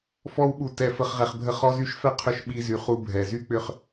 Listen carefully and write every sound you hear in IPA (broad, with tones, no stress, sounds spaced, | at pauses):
f ɔ˧ w ɓ u˨ t ɛ˨ f ə˨ χ ʁ ɛ˨ χ bʱ ə˧ χ ɔ˧ z y˧ ʃ f ɛ˦ qʰ ʏ˧ ʃ ɓ i˧ z y˨ χ u˧ bʱ ɛ˨ z y˦ k͡p ʏ˦ χ